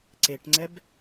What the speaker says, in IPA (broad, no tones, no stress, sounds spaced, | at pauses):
ǀ e ʈ ŋ͡ǀ ɛ b